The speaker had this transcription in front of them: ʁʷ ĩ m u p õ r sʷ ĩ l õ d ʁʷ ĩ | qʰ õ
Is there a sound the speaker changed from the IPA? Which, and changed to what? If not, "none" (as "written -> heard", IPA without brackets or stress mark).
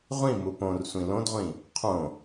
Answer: none